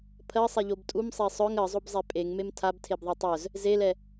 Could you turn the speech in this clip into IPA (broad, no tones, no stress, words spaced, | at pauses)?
pʰɜsˤɛʎob tʼumsˤe sˤœŋ ɜzˤobzˤe pʼeŋmem tʰabtʰebðˤe tˤœz | zelɛ